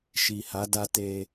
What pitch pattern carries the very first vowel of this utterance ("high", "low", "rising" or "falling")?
low